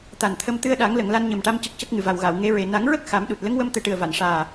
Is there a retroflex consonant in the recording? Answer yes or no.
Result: yes